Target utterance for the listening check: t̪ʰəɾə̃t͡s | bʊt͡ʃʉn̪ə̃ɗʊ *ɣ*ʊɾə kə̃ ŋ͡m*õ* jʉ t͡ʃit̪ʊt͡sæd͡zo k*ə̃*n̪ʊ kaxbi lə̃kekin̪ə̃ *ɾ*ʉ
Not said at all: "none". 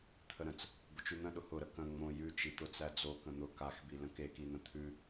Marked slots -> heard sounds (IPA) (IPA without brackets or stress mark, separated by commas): h, õ, ə̃, t̪ʰ